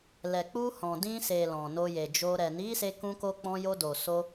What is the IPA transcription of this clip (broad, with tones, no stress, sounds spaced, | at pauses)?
l ɛ˨ k͡p u˧ h ɔ̃˨ d ĩ˧ s e˨ l ɔ̃˨ n o˧ j e˨ d͡ʒ o˧ ɾ ɛ˨ n i˨˦ s e˧ k ũ˧ k o˧ k͡p ɔ̃˧ j o˧ d o˨ s o˧